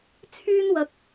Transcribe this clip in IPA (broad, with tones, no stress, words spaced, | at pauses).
t͡sʰyː˥nwɐ˧k̚